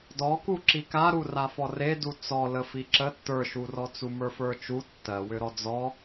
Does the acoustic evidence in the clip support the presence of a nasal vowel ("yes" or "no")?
no